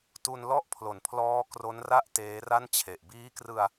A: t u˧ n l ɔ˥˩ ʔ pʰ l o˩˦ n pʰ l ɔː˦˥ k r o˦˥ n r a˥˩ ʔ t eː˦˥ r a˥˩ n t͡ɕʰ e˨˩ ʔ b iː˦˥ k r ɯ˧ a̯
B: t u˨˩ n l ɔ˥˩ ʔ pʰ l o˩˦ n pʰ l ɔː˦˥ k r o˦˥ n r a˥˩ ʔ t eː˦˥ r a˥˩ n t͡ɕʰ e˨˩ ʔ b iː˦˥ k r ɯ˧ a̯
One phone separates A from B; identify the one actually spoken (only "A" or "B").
A